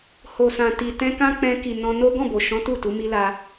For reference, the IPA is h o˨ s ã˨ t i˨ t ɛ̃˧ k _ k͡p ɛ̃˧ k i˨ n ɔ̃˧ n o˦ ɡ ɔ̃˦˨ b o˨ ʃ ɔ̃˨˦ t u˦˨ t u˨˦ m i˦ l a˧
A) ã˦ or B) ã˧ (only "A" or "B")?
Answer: A